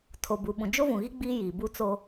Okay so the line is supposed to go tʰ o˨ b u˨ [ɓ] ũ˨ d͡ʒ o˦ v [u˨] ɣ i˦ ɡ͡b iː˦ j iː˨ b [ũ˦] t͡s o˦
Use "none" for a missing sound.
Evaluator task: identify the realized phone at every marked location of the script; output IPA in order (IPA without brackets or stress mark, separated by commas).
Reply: ɓ, ũ˨, u˦